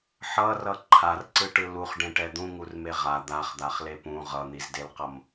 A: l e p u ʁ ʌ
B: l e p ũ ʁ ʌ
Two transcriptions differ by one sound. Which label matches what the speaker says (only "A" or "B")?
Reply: B